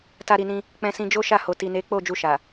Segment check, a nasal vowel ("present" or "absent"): present